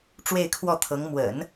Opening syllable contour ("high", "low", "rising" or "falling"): falling